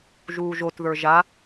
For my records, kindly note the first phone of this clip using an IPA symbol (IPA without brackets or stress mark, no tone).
ʒ